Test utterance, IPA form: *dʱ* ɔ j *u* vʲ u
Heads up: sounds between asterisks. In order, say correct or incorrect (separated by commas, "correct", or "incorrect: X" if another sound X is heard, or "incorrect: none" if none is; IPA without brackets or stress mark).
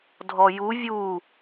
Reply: correct, correct